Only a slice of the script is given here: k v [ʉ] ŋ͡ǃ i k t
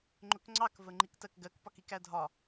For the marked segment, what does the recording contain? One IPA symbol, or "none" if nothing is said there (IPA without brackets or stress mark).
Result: ə